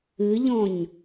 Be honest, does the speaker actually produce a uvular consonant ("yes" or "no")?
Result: no